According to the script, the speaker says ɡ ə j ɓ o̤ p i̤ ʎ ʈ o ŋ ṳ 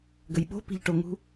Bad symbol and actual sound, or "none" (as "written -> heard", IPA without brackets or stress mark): none